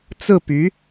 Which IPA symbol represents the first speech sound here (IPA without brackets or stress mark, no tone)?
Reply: t͡s